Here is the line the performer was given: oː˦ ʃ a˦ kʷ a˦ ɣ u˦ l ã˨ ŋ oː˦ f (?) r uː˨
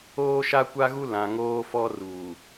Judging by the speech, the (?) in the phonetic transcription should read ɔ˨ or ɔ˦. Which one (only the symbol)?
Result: ɔ˦